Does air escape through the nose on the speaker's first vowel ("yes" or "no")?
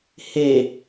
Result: no